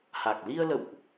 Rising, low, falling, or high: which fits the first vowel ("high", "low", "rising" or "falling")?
low